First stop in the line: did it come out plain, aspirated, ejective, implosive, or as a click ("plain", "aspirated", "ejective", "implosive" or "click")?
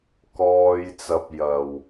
plain